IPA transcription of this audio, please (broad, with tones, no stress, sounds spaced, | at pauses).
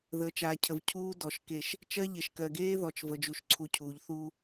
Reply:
ð əː˨ t͡ʃ aː˨ cʰ ə˨ v cʰ uː˦ d ɔ˨ ʃ k e˦˨ ʃ | t͡ʃ ɜ˦ ʎ e˨ ʃ k ɜ˨ ɡ eː˦ ð ɔ˨ t͡ʃ v ə˨ d͡ʒ u˨ ʃ ǀʰ u˨ cʰ uː˨ ʎ θ uː˦